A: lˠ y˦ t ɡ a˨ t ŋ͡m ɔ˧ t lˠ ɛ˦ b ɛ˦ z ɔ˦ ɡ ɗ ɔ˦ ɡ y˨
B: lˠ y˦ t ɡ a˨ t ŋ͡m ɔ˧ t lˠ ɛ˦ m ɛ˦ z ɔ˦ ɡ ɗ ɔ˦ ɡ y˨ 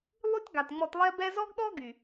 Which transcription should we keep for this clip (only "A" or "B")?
A